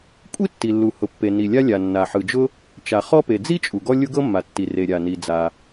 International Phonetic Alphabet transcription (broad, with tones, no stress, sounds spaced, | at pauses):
kʷʼ i˥ tː i˩ lː u˩ h ʊ˩ pː e˩ n i˩ lʲ a˥ lʲ a˩ nː a˩ ħ ɯ˩ d͡ʒ ʊ˥ | t͡ʃ a˩ χ ɔ˥ p e˩ d͡z i˥ t͡ʃʼ u˩ ɡ ɔ˥ lʲ ʊ˥ ɡ ɤ˥ mː a˩ tː i˩ r e˩ ɾʲ a˩ n i˩ d͡z a˩